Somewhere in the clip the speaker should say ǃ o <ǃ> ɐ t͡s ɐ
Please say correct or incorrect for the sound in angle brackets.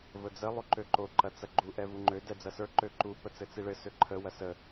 correct